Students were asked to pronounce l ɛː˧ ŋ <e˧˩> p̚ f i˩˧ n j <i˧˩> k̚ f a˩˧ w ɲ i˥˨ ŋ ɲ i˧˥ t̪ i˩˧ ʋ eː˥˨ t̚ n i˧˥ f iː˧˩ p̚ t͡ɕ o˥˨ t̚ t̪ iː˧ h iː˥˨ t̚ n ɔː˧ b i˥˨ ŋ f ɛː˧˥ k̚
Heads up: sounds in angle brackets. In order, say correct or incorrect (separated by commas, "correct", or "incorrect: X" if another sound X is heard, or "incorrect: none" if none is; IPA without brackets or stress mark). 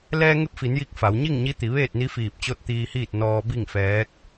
incorrect: e˧, correct